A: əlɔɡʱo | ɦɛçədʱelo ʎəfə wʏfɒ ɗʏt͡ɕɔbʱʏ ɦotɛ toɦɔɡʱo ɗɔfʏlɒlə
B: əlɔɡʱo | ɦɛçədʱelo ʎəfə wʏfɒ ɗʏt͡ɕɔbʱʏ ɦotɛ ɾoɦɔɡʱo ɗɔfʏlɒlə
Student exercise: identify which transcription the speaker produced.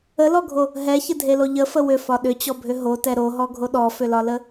B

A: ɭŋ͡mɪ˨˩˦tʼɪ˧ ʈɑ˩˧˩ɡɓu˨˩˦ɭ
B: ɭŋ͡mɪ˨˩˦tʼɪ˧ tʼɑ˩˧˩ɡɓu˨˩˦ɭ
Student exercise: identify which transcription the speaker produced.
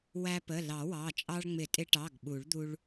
A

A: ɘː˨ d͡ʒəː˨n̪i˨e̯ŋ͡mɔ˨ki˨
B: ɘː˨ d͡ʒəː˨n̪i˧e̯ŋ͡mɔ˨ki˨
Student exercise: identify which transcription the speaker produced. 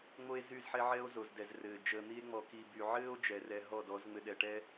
B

